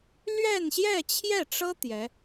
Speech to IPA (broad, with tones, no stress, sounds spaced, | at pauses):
l ɥ ɛ˥˧ n ɕ j ɛ˥˧ t͡ɕʰ j ɛ˥˩ ʈ͡ʂ ɤ˥ t̪ j ɛ˧˥